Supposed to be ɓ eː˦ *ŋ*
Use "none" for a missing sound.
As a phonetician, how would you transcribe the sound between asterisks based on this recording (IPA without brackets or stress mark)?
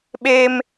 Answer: m